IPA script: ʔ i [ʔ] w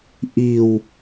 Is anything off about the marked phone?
yes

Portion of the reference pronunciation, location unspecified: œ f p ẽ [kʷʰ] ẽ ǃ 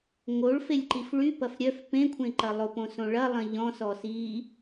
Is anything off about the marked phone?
no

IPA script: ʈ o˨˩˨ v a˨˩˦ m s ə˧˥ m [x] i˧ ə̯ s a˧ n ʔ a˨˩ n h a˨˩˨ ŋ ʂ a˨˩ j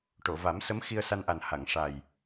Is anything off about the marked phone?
no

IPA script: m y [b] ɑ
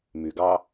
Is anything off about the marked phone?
yes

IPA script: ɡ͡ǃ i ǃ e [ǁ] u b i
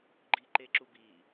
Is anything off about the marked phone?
no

